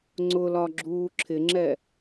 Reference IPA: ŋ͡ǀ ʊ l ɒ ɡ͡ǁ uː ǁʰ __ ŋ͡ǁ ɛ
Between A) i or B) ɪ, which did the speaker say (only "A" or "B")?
B